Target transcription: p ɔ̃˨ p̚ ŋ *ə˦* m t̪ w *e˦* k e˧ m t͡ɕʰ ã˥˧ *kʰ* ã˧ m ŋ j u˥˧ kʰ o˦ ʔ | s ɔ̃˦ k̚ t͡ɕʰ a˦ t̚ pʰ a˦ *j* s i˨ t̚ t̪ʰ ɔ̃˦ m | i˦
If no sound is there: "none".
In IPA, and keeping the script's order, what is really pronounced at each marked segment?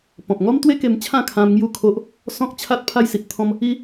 ɔ˦, e˦, kʰ, j

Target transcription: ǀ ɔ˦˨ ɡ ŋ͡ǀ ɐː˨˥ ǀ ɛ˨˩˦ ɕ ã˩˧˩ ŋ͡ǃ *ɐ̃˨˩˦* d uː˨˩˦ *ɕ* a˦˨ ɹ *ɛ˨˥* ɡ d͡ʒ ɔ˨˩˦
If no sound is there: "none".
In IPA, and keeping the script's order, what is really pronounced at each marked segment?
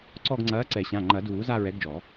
ɐ˨˩˦, z, ɛ˨˥

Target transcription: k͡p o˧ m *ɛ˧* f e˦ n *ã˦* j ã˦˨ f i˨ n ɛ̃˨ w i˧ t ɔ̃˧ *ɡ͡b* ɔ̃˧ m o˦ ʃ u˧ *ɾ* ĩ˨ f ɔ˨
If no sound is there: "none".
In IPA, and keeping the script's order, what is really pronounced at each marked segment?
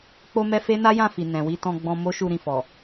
ɛ˧, a˦, ɡ͡b, ɾ

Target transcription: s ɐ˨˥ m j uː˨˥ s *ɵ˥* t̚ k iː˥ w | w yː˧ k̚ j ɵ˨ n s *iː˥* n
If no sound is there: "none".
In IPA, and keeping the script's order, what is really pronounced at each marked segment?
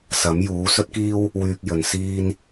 ɵ˥, iː˥

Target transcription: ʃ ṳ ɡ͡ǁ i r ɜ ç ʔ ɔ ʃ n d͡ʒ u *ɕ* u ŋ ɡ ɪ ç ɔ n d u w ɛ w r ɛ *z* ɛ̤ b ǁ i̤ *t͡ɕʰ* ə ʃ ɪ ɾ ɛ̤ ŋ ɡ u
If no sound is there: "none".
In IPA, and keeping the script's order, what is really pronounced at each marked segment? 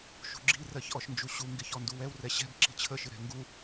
ɕ, ɕ, t͡ɕʰ

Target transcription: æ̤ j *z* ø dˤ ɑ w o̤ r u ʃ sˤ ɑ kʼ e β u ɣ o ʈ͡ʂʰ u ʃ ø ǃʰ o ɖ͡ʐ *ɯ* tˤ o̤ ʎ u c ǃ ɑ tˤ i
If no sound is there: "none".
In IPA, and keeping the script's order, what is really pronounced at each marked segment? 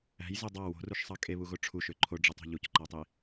z, ɯ

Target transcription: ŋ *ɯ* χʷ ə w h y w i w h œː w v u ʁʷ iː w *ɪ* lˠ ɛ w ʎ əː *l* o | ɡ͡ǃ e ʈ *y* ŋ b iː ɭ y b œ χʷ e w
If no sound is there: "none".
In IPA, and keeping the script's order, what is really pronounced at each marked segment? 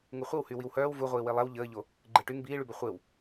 u, i, ʎ, y

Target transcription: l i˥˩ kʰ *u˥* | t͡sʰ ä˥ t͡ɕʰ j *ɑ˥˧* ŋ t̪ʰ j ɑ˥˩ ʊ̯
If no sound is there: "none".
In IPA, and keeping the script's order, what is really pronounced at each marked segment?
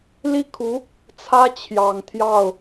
u˧˥, ɑ˨˩

